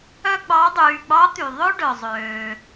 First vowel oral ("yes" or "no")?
yes